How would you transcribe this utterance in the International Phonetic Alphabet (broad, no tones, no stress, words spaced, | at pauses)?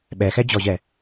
ɓɛxɛd͡ʑɔʑɛ